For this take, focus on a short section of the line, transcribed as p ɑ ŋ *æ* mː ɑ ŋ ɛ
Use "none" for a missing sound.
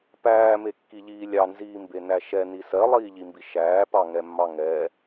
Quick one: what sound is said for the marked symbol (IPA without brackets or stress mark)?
ɛ